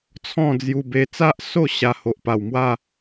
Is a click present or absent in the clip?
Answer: absent